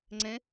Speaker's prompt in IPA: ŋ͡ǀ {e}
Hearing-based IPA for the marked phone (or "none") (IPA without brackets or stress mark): ẽ